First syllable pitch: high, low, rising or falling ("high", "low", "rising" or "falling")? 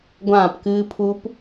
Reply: falling